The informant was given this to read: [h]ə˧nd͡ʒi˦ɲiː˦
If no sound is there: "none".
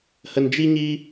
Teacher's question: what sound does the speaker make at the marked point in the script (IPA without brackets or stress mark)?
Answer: h